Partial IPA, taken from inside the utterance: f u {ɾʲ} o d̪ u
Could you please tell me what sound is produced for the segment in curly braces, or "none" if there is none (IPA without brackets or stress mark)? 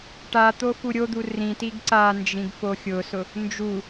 ɾʲ